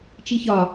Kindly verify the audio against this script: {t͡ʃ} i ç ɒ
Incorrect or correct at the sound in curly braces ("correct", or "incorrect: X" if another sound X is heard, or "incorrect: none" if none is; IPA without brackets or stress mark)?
correct